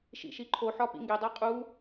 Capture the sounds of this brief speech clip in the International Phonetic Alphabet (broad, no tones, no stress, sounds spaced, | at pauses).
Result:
ʃ ḭ ʃ i ǃʰ o ħ ɒ p ḭ ŋ ɡ e dˤ æ qʼ u